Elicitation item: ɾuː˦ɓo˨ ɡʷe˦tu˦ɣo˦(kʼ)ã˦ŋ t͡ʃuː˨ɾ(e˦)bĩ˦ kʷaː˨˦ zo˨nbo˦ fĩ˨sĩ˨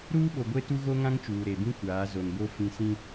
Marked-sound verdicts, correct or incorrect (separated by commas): incorrect, incorrect